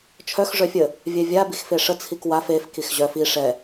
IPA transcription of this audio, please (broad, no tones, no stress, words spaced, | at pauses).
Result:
t͡ʃʰœx ʐœfʲə | vʲɛvʲa bixfeʂə t͡sʰikwaf ef kixʑœf i ʂɛ